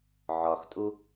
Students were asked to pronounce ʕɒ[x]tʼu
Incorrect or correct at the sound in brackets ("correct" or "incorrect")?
correct